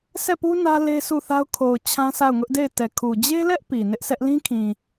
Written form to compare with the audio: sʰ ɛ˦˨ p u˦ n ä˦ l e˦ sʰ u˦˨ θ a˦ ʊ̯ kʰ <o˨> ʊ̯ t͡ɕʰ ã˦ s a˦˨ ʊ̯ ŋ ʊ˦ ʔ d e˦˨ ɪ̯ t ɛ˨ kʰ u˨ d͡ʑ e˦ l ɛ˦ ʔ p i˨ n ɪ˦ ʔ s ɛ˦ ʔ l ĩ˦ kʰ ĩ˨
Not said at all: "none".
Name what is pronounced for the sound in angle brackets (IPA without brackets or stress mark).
o˨